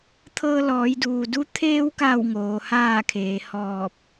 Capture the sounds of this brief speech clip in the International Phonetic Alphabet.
t̪ʰ ɤː˧ l ɔː˩˧ j d uː˩ d u˧˥ t̪ʰ eː˧ w k a˧˩ w ŋ oː˩˧ h aː˥˨ kʰ eː˩˧ h ɔː˧˩ p̚

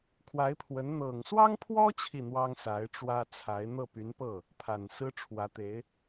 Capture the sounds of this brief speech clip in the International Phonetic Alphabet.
kʰ w a˧˥ ɪ̯ pʰ w ə˧˥ n n̪ ɤ˨˩ ŋ s w ɑ˥ ŋ pʰ w ɔ˥ t͡ɕʰ i˥˩ n̪ w ɑ˥ ŋ s a˧˥ ɪ̯ ʈ͡ʂ w ä˥ t͡sʰ a˧˥ ɪ̯ n̪ ɤ˥˩ p y˧˥ n p ɤ˥˩ | pʰ a˨˩ n s ɹ̩˥ ʈ͡ʂʰ w ä˧˥ t̪ e˧˥ ɪ̯

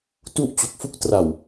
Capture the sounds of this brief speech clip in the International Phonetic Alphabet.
t u˥˩ ʔ t͡ɕ u˨˩ k̚ f u˥˩ k̚ t r a˨˩ w

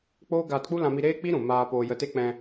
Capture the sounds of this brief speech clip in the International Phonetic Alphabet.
k͡p oː˦ ɡ aː˧ t k͡p u˦ l ã˧ m i˧ ɾ eː˦ k͡p i˦ ɾ ũ˨ m aː˧ p oː˧ j ə˧ t e˦ k͡p ɛ̃˧

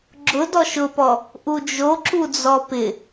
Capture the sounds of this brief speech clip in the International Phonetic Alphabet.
ɡ͡ǁ ʊ d ɔ ʃ ʊ p ɔ | ʔ u d͡ʒ o ǁ u d͡z ɔ p ɪ

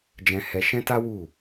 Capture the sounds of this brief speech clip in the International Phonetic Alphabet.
d͡ʒ ɛ̃˧ h ɛ˧ ʃ ɛ̃˦ t a˦ w u˦˨

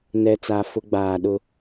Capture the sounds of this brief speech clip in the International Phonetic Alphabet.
n ɛ˨ t͡s a˨ f ʊ˦ ɡ͡b aː˨ ɗ ʊ˦

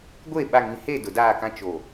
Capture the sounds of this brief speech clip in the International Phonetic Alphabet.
ɡʷ e˦˨ ɓ a˨ ŋ ĩ˨ h e˦˨ d ʊ˨ d aː˦˨ k ã˦ t͡ʃ o˨

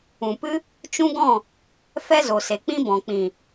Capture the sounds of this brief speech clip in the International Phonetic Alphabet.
ũ˨ p ɨ˦ | t͡ʃ ũ˦ ɡ ɔ̃˦˨ | f ɛ˦ z o˨ s e˨ k͡p ĩ˦ b ɔ̃˨ k͡p ĩ˨

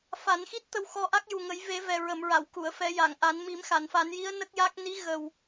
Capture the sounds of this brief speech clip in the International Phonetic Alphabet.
f a˨˩˦ n x i˦˥ t̚ t̪ ə˧ w x ɔ˧ ʔ a˦˥ k̚ j u˨˩ ŋ ə˨˩˦ j v e˨˩˦ v ɛ˨˩ ɹ ə˨˩˨ m ɹ a˨˩˨ w k u˨˩˨ ə̯ f ɛ˨˩˦ j a˨˩˨ ŋ ʔ a˨˩˦ n m i˨˩˦ m x a˨˩˨ n f a˨˩˦ n j i˧˥ ə̯ n ə˦˥ k̚ j a˦˥ k̚ n i˧˥ ɣ ə˨˩ w

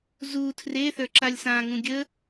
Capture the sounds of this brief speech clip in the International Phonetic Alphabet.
z u tʰ r e θ ə˞ ǁ a lʲ s ã ŋ ũ ɡʲ ə

